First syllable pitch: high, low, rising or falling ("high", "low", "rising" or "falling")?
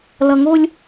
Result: low